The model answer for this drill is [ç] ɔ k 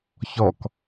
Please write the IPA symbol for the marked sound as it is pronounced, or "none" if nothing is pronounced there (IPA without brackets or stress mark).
ç